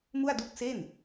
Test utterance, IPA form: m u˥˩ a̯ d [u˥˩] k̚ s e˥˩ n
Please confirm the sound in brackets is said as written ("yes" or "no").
yes